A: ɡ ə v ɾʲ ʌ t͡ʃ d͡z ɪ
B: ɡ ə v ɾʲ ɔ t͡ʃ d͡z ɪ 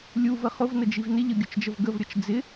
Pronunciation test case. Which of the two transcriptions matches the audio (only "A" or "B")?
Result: A